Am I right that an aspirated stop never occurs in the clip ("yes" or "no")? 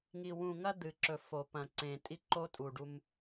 yes